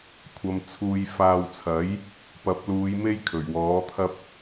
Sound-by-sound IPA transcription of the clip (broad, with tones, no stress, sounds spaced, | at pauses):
kʷʰ ɐ˧ m t͡sʰ uː˨ j f aː˨ w t͡sʰ ɐ˨˥ j | p ɐ˨˥ p̚ l uː˨˧ j m e˥ j kʰ ɵ˨˩ ɥ w ɔː˨˥ t̪ʰ ɐ˥ p̚